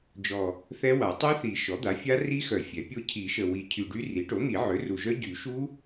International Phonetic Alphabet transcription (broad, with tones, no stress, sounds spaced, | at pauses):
d͡ʒ ɔ˨˩ | θ ɛ˦˥ w a˨˩˦ tˤ y˦˥ θ i˨˩˦ ʃ ɔ˩˥ d̪ a˩˥ fʲ a˦˥ r i˦˥ x œ˨˩˦ fʲ ɛ˩˥ pʲ o˦˥ cʰ i˨˩˦ ʃ ə˨˩ w i˨˩˦ cʰ y˨˩ ɖ y˦˥ r i˩˥ ʈ o˩˥ n̪ i˨˩˦ ʕ ø˩˥ r u˨˩ ʒ œ˦˥ ɟ y˨˩˦ ʃ u˦˥